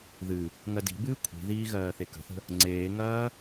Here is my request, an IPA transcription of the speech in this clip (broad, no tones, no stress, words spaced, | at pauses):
ðɨ | ŋɜdi̤bɨː kʷʰi̤ðiː ɣɜːθekə̤θə̤ | ŋ͡ǀeːŋɐː